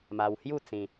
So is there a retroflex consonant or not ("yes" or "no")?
no